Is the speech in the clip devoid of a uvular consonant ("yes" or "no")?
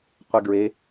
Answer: no